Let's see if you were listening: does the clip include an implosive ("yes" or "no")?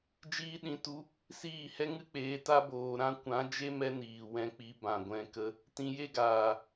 yes